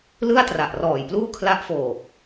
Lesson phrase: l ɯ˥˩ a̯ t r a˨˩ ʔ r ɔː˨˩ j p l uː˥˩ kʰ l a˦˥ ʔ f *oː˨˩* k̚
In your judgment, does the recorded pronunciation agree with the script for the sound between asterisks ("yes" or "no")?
yes